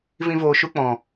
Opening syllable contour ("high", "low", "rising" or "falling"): high